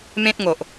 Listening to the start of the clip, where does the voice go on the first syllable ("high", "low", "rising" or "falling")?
high